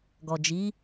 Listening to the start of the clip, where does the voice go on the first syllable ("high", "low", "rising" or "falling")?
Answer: low